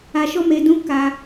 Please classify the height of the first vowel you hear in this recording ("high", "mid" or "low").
low